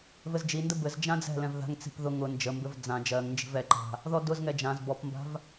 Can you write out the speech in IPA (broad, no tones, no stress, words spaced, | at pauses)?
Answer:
vɘzd͡ʒində bɘz d͡ʒãd͡zɛ̤lɛ̃v ða̤ŋt͡si̤p ðʊ ŋʊ nd͡ʒəmbɘv d͡zã d͡ʒɜŋnd͡ʒi̤v ɛǃa̤ | ðɔdʊzŋɛ d͡ʒãz bɔpmba̤v